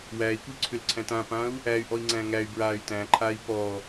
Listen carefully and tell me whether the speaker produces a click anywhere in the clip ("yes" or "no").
yes